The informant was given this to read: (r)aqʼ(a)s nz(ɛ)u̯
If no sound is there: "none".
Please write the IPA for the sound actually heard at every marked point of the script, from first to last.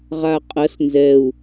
ʁ, ɐ, ɛ

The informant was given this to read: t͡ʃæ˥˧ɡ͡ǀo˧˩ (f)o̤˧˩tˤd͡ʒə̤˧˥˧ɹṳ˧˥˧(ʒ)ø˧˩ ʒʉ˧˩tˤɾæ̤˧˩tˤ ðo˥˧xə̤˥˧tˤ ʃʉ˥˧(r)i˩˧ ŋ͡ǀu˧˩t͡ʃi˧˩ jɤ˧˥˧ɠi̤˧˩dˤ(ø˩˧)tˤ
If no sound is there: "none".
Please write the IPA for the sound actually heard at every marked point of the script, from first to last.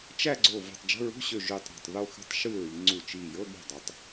v, ɕ, ɹ, ø˩˧

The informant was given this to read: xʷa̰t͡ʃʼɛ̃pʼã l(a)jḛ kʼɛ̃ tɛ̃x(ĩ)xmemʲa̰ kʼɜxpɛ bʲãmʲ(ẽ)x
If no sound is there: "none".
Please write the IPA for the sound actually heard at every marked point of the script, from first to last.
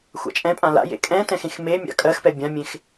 a̰, ẽ, ẽ

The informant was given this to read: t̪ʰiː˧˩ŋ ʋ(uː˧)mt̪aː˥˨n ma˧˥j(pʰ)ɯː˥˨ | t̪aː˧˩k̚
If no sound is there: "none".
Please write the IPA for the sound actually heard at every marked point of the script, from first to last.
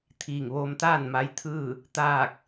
oː˧, t̪ʰ

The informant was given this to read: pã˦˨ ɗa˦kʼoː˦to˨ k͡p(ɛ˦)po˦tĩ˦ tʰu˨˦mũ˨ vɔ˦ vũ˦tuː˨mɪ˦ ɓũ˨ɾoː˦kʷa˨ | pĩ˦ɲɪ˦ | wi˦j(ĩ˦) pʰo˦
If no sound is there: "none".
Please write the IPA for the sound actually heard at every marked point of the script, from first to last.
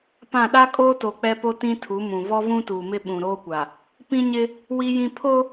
ɛ˦, ĩ˦

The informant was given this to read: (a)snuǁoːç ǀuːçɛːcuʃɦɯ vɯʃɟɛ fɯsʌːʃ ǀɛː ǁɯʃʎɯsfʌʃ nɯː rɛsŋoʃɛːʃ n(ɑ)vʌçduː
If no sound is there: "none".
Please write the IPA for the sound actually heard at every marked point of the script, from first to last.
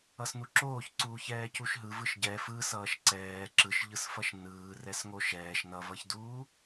ʌ, ʌ

